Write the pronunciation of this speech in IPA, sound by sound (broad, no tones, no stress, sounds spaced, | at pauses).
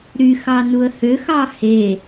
ɾ y x ɑ n u ə̯ h ø x ɑ h e